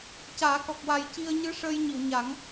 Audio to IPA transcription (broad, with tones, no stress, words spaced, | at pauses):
caː˨˩˦kɔ˨˩k̚wa˨˩j ci˧ə̯ɲɨ˧˥ʂəː˧j ɲi˨˩˨wɲa˨˩˦ŋ